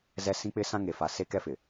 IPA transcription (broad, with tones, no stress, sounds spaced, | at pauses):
z ɛ˦ s ĩ˦ k͡p ɪ˦ s ã˦ ŋ e˨ f a˨ s e˦ k ɛ˦ f ɪ˨